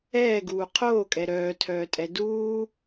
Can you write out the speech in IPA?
ɛː ɡ uː qʰ oː kʼ ɛ ɾ œː tʰ œː tʼ ɛ d uː

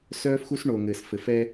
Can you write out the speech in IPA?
s œː˦ f x u˦ s ɳ o˨ ŋ ɘ˨ s f ɘ˨ f ɛ˦

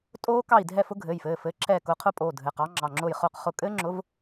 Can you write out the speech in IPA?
tʼ oː˦˥ k ɑ˦˨ i̯ dʱ ɛ˦˨ f ʊ˦˥ ɡʱ ɘː˩˧˩ j f ɘː˩˧˩ f ɘː˨˥ ǁʰ ɛː˦˨ k ʊː˨˥ qʰ ʊ˦˥ pʼ oː˩˧˩ dʱ ɘ˩˧˩ q ɑ˨˥ ŋ͡ǁ ɑ˩˧˩ ŋ͡ǁ ʊː˦˨ j χ ʊː˦˨ q χ ʊ˦˨ kʼ ɘː˦˥ ŋ͡ǁ ʊ˨˥ v

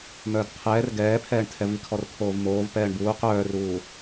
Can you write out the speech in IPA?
m œː d qʰ ɛː r ɡ ɛː pʰ ɛː ɳ tʰ ɛ v i kʰ ɔ r t̪ʰ oː v m oː v p ɛː ɳ b uː q œː r uː

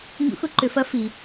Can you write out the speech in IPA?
ŋ ṵ˧˥ x ʊ˧˥ ǃ ʏ˩˧ f ɐ˧˥ f i˩

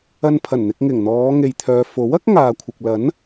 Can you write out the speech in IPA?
ɐ˧ n pʰ ɐ˨˩ n n̪ ɪ˧ k̚ ŋ ɪ˨˩ ŋ n̪ ɔː˨˧ ŋ e˨ j t̪ʰ œː˨ f o˨˥ w ɐ˥ k̚ ŋ aː˨ kʷʰ ɪ˨ k̚ l ɐ˨˥ n

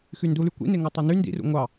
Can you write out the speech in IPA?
x y n d u l y kʷ ḭ n e ŋ o tˤ e n y n d ḭ r ṵ ŋʷ ɑ

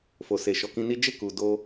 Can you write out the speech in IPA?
f o˨ s e˨ ʃ ɔ˨ k ĩ˧ n i˦ d͡ʒ e˦˨ k u˨ d o˧

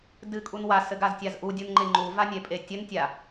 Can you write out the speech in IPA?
d ɨ kʼ u n w a s ɘ ɡ a z tʲ a z ʔ u dʲ u n ŋ͡ǃ e ŋ͡ǃ u v a nʲ e pʼ e tʲ ɘ n tʲ a

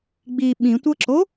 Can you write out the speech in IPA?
ɡ͡b i ɓ ĩ tʷ ɤ ǁ o

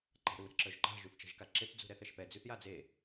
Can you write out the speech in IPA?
ǃ a̤ ɾ u ɾ ɛ̤ ǁ œ ʒ ǃ a̤ ʒ y θ t͡ʃ ɛ̤ ʒ k a ǁ e p d͡z ṳ ɾ ɛ θ ɛ ʃ p ɛ d͡z y θ j a d͡z e

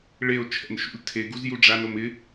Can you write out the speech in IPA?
ɭ e o̯ t͡ʃʰ ɛ̰ n ʃ ṵ lʲ tʰ e ɡ u z j u ɖ͡ʐ a n o m ɪ

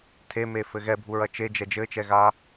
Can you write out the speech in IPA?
tʰ e m e f ɘ ɣ ɛ bʱ u ɹ ɐ t͡ʃ e d͡ʒ ɛ d͡ʒ ɘ t͡ʃ ɛ ɣ a

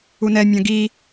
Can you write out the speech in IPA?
u n ɛ mʲ ɐ̃ ɡ i

